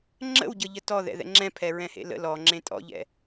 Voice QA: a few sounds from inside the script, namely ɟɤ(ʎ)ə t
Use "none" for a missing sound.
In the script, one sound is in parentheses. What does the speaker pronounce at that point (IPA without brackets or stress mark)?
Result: ʎ